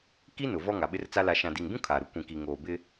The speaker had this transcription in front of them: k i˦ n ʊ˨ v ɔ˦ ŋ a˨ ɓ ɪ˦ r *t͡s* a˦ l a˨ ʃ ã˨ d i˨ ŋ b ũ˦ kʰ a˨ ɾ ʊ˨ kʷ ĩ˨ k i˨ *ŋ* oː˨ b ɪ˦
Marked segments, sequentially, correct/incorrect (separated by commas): correct, correct